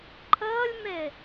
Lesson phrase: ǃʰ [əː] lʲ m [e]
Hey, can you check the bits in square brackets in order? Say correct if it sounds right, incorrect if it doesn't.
correct, correct

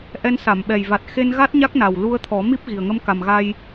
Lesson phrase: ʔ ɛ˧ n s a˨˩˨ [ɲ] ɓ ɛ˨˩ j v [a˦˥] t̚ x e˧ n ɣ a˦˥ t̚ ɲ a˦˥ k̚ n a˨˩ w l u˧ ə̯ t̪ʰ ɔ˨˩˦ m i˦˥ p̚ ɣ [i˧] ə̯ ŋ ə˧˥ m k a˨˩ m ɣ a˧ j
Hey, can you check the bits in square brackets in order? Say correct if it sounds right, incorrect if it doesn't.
incorrect, incorrect, incorrect

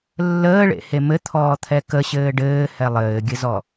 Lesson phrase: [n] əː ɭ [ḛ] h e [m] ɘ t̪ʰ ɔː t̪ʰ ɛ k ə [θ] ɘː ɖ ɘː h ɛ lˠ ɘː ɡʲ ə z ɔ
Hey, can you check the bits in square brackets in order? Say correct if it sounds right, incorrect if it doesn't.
incorrect, correct, correct, incorrect

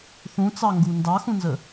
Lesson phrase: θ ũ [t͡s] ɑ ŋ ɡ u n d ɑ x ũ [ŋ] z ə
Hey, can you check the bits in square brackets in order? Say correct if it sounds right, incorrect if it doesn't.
correct, incorrect

